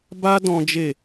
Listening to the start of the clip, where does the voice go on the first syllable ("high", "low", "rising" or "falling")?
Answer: high